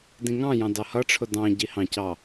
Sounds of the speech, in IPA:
d ĩ ŋ ɑ̃ j ɑ̃ d ɑ h ʌ ʈ͡ʂʰ ʊ d ɑ̃ ɟ i h ɑ̃ c ɑ

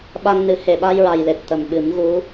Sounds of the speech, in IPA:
ɓ a˧ ŋ n ɨ˨˩˦ h e˨˩ ɓ a˧ j ɹ a˨˩ j l e˨˩ t̚ t̪ ə˨˩ m ɓ ɨ˨˩˦ m ɣ u˧˥

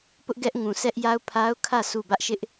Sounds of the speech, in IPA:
p ʊ˦ ʔ ɡ ɛ˦ ʔ ŋ ũ˨ sʰ ɛ˦ ʔ j a˦ ʊ̯ pʰ a˦ ʊ̯ kʰ ä˦˨ sʰ u˦˨ b ä˦ ʔ ʃ ɪ˦ ʔ

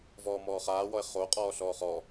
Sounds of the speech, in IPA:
v ɔː m ɔː χ aː w ɔ e̯ χ o qʼ ɔː ɬ ɔː χ ɔ

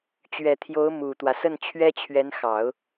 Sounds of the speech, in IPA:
t͡ɕ ɥ ɛ˨˩ t̪ʰ j o˧˥ ʊ̯ m u˨˩ t̪ w ä˦ s ə˥˩ n t͡ɕʰ ɥ ɛ˥ t͡ɕʰ ɥ ɛ˧˥ n x ɑ˨˩˦ ʊ̯

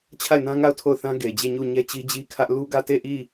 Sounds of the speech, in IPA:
t͡ɕʰ a˦˨ ɪ̯ n ã˦ ŋ a˦˨ ʊ̯ tʰ o˦˨ ʊ̯ θ ã˦ ɡ e˨ ɪ̯ d͡ʑ e˦˨ ɲ u˦˨ ɲ ɛ˦ t͡ɕ i˦ d͡ʑ i˦ kʰ ä˦ ʔ l u˦ ɡ ä˦˨ t e˦˨ ʔ i˦˨

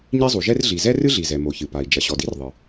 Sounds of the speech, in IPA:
ɲ i˥ zˤ u˩ ʒ ɛ˥ r ɮ i˩ z ɛ˥ r ɨ˥ ɮ i˩ z ɛ˩ m o˩ ç ɨ˩ p a˩ i̯ d͡ʒ ɐ˩ ɕ ɔ˩ d i˥ r ðˤ ɨ˩

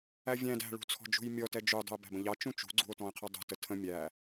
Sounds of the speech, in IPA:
æ vʲ æ̃ d æ̤ ɭ ṳ t͡sʰ ɔ̤ d͡ʒ ṳ j mʲ ɔ t ɛ d͡ʒ u dˤ ə̤ e̯ b æ̤ b ə̃ ʎ ɑ t͡ʃ ũ t͡ʃ ṳ ɡ͡ǀ ṳ o̯ t ɔ̃ e̯ qʰ ɛ dˤ ṳ t ə tʰ ə̃ mʲ æ

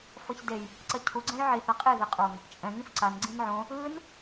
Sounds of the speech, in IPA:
f ʌ ç d e j | ǀ ʌ cʰ u ɡ͡ǀ ɛ̃ j ʕ i θ a qʼ e ð ɛ qʼ o ŋ | t͡ʃʼ ɛ̃ ŋ ĩ f ǀ a n ɡ͡ǀ ĩ n ʕ õ | ɯ n

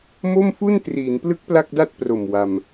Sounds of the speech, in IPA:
m o˥˩ m f u˥˩ n t r iː˩˦ n p l ɯ˦˥ k̚ p l a˥˩ k̚ d a˥˩ t̚ p r o˨˩ m w a˧ m

